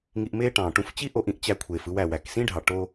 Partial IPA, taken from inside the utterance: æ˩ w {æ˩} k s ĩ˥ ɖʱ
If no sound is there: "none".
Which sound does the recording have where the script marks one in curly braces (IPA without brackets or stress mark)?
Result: æ˩